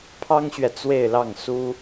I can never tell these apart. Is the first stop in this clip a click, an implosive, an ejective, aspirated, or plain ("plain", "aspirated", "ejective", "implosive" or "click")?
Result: aspirated